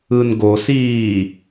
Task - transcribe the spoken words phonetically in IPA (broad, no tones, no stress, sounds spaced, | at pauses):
ɯ n ɡ o s iː